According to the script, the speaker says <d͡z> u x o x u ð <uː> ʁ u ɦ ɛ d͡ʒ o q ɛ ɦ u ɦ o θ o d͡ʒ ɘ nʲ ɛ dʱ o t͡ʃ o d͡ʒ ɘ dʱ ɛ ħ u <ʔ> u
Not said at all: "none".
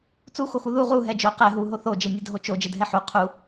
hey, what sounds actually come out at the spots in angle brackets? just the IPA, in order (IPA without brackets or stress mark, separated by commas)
t͡s, u, qʰ